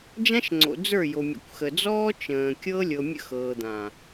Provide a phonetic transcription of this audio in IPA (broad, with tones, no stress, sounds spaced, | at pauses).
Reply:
d͡ʒ ã˦ ʃ ŋ͡ǀ o̰˨ d͡z ə˞˦˨ j o˨ mʲ ə̰˨ kʷ x ə˨ d͡z ɔː˦ t͡ʃ ə̃ː˨ kʲ ɤ˦ lʲ ɤ˨ mʲ ə̰˦ x ɤː˨ d̪ ã˨